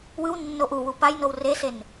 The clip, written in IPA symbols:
w ɯ w nː o ʔ u w u p a j n o w r e s e n

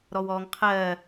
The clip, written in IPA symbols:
ɾ ɔ w ɔː ŋ qʰ ɜː

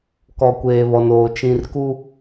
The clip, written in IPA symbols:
k ɔ˨ kʷ eː˨ β ɔ˨ n oː˨ t͡ʃ ĩ˨ r k u˦

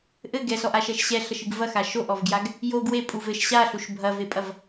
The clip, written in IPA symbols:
ʔ ɘ ɡ ɛ s ɔ ʔ a ʃ ɛ ʃ ɕ ɛ ɬ ɐ ʃ ɨ ɡ v ɐ x a ʃ o ʔ ɔ v ɡ j a ɡ | j o ɡ w e pʼ u v ɘ ʃ ɕ a ɬ u ʃ bʱ ɐ v e pʼ ɐ v

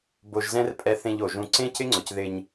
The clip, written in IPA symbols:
b o˧ ʒ z ɛ̃˦ r pʼ ɛ˧ θ ẽ˧ ʎ o˨ ʒ ũ˧ ǀ ẽ˦ c ɪ˦ ŋ͡ǀ ʊ˨ c ð ɪ˧ ɲ

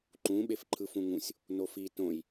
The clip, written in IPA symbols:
ǃ ũ ɓ e f ǃʰ ɯ f ũ ŋ ũ sʲ | n o f i t õ j

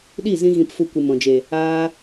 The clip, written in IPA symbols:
ɗ i˦˨ z ĩ˧ ɣ ĩ˧ p f u˧ kʷ ɨ˨ m ɔ̃˨ d͡ʒ e˨ | aː˧

